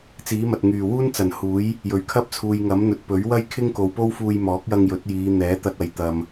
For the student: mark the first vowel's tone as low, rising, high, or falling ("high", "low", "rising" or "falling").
rising